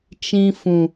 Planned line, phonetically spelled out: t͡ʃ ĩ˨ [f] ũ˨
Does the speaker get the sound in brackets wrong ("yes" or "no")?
no